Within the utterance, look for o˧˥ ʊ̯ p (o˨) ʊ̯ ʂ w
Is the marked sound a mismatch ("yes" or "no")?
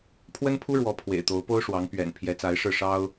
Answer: yes